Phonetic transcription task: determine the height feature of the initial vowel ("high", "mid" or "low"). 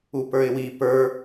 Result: high